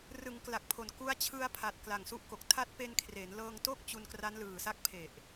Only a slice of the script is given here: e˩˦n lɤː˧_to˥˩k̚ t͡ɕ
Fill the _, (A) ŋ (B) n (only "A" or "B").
A